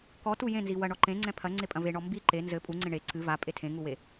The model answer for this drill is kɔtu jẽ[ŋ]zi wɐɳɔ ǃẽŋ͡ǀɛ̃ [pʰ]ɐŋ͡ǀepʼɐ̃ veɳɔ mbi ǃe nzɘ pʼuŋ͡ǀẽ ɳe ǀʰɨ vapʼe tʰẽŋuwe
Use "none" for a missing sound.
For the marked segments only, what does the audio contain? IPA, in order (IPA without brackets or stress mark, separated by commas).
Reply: n, pʰ